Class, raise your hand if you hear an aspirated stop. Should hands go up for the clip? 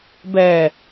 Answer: no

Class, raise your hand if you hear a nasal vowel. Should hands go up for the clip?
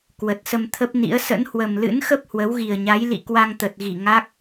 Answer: no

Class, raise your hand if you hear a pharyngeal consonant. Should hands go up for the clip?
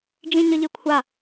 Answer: no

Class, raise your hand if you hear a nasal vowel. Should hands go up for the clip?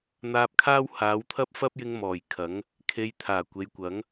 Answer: no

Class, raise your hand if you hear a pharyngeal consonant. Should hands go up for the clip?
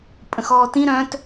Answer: no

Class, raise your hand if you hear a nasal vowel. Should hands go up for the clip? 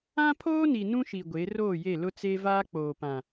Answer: yes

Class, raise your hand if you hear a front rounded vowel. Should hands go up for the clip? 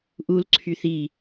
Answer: yes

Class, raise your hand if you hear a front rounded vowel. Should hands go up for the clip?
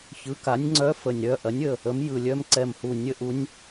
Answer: yes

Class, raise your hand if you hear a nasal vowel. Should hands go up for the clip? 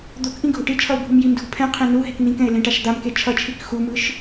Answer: yes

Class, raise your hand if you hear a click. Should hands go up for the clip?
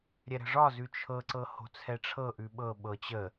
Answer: yes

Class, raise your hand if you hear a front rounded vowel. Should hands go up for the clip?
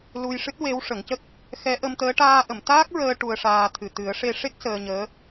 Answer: no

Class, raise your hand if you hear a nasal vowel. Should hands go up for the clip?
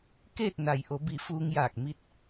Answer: no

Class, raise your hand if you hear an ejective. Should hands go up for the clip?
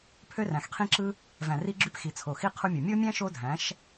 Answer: no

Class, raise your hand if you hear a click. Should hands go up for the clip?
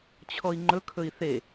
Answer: yes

